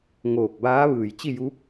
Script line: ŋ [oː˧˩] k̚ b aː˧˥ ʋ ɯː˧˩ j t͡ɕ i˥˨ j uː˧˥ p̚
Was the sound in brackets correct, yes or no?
yes